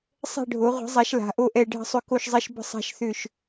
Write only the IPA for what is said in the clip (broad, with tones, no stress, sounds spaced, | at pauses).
sˤ ɛ̤˥˧ ɖʱ o˩˥ ʁʷ i̤˩˥ zˤ a˩˥ ʃ l a̤˩˥ ʔ o˥˧ ʔ ɛ˥˧ ɖʱ ə̤˥˧ sˤ ʏ˥˧ k o˥˧ ʃ zˤ ɛ˥˧ ʃ b ə̤˥˧ sˤ a̤˥˧ ʃ θ ʏ˥˧ ʃ